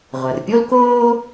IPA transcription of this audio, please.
ʁʷɐ˩rpʲo˥lkoː˥

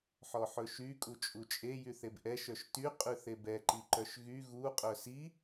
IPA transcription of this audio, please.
ħɔħɵʃy kʼut͡ʃʼut͡ʃʼe jyθebʔɛ ʃœʃty qʼʉθebɛ ǃiǃœʃɣy ɣu qʼœsi

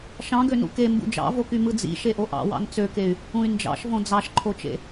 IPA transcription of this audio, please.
ʃɑ̃ɡønṵ kembṵ d͡ʒɑ̰voky mɯd͡zḭ ʃeʔoʔɑ̰ wɑ̰nt͡søkey̯ | ũy̯nd͡ʒɑ̰ʃvõ d͡zɑʃǃʰot͡ʃḛ

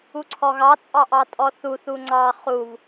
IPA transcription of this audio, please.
uǀʰɔɣɑt͡sʼɑ ʔɑtʼɔθuθu ŋ͡ǀɑ χuv

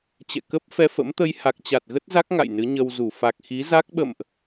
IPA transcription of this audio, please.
t͡ɕɛ̰˧˨ kə˦˥p̚ fɛ˧fə̰˧˥mt̪ə˧jha˨˩k̚ t͡ɕa˨˩t̚ɣə˦˥t̚za˦˥k̚ ŋa̰˧˨jnɨ˨˦ɲə˧wzu˧˩ fa˨˩k̚ xi˨˦za˦˥k̚ɓə̰˧˨mʔ

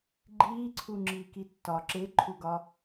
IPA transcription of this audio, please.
ɡ͡ǃiːǀʰu ŋ͡ǁiːkitːɒ ǁeǃʰuɡɒ

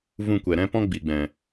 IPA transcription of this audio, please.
vũ˧kʷɛ˨ɾɛ̃˦pɔ̃˦ ɡ͡bi˨ɡ͡bɛ̃˨

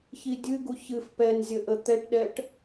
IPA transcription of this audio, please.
çidʲɨɡu çɨf pɛnzʲə ʔət̪ɛʈɗɛʈ

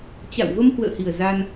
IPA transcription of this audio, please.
t͡ɕa̰˧˨w və˧mhwə̰ː˧˨hi˨˩ə̯ za˧n

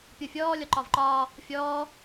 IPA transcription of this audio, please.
pʲofʲɔː lʲɒǃɒvǃɒː | fʲɔː

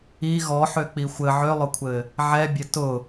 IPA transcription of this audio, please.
i ɣɔħøk͡pi xʷɘ ʕølˠʊkʷʰɘ | ʕɛbʲɘ tʊ

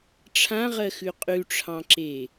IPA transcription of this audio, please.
ʈ͡ʂʰãʁɜxʉ qʼʉʈ͡ʂʰɑ̃ǁe

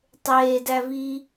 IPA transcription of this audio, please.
tˤeːdævi

